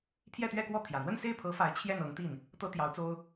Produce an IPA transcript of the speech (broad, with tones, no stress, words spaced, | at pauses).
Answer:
pʰjɛ˥˧t̪ɥɛ˥˧kwɔ˥˩t̪ʰjä˨˩ n̪wə˥˧nse˥˩ɪ̯pʰɤ˧˥ fa˧˥ɪ̯ t͡ɕʰjɛ˥˩nɤ˧˥ŋt̪i˥˩n | t̪ɤ˥t̪jɑ˧˥ʊ̯t͡so˥ʊ̯